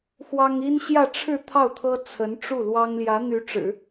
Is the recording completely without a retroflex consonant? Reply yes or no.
no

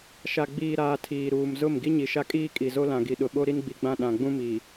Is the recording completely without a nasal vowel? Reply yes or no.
no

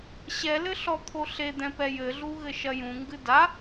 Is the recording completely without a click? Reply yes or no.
yes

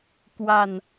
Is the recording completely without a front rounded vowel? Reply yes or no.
yes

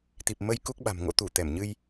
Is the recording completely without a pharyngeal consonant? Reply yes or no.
yes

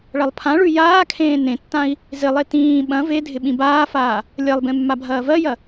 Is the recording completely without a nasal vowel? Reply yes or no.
no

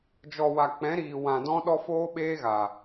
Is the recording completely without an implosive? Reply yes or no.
no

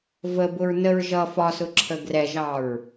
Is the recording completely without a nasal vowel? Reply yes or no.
yes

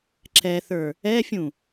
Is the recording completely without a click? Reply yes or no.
no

